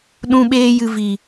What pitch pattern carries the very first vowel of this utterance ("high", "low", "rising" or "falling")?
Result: high